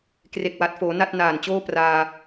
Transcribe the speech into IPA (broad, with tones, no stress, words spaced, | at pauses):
kre˨˩k̚wa˨˩t̚foː˩˦ na˥˩t̚naː˨˩nt͡ɕoː˥˩ praː˧